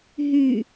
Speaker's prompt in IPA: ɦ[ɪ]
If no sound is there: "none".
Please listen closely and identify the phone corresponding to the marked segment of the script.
y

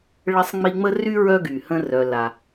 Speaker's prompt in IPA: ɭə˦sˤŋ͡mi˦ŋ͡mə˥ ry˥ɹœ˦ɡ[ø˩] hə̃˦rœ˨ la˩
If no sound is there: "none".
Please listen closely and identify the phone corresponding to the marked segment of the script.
y˩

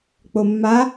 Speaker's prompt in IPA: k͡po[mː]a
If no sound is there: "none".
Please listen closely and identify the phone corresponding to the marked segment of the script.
mː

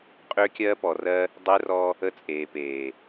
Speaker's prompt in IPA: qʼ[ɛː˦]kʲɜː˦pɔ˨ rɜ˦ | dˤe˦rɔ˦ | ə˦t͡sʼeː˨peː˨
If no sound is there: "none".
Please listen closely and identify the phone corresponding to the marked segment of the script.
ʏː˦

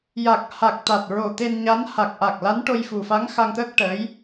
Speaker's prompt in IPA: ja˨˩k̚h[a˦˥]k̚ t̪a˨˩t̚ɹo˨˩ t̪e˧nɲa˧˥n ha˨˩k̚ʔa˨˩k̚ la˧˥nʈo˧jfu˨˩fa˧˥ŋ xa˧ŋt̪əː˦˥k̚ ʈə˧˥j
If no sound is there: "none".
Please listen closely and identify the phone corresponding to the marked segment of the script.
a˨˩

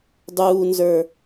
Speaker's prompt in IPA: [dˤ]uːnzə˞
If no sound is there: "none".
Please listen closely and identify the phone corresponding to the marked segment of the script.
dˤ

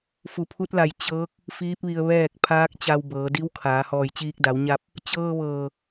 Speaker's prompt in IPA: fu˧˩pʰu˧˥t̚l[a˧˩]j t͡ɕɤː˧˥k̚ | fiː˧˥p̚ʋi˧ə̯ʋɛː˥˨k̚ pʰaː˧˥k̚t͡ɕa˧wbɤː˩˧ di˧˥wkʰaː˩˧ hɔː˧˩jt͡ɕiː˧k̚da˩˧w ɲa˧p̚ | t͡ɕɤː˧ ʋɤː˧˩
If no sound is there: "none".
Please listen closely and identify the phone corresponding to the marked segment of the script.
a˧˩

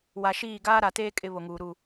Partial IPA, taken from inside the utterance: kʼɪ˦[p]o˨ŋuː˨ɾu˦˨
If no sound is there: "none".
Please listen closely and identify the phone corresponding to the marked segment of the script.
β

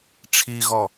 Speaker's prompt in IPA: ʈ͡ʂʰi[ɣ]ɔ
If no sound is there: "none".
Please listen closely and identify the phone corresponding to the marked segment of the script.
ɣ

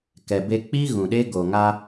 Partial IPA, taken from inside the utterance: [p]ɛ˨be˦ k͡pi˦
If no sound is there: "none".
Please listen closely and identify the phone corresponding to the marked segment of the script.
k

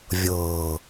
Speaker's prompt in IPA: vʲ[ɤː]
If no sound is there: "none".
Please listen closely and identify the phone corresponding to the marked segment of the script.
ɤː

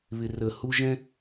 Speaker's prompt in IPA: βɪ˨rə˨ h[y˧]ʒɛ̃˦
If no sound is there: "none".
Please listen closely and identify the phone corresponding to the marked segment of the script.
u˧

